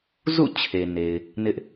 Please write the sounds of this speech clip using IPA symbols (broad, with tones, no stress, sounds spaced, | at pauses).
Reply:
z ṵ˦˨ t͡ɕʰ e˨ n e˨ ɪ̯ | n ɪ˦ ʔ